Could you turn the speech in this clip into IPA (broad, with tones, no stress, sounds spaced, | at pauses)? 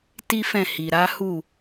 t i˦ f ɛ̃˦˨ h i˨ ɾ a˨˦ h u˦˨